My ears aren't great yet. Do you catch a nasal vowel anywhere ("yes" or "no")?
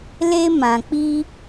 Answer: yes